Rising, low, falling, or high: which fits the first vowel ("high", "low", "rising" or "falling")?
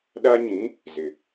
high